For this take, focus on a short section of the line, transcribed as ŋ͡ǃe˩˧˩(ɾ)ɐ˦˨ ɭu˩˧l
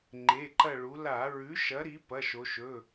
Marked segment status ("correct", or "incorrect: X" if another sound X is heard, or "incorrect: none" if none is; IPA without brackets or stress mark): incorrect: ǃ